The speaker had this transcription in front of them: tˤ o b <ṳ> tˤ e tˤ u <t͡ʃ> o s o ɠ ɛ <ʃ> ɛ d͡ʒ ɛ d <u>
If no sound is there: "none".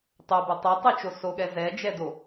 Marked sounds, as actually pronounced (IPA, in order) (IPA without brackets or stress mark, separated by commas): u, t͡ʃ, z, o